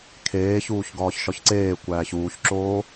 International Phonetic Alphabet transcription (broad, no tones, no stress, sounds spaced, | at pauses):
kʰ eː ç uː ç ɡ ɒː ç ʃ ɒ ç ǀ eː kʷ æː ç uː ç ǁ oː